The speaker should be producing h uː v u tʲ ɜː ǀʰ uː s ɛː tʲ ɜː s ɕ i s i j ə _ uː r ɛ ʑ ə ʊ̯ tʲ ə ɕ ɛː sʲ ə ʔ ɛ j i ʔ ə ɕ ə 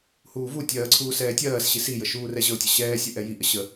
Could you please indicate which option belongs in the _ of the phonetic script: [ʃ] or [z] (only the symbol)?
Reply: ʃ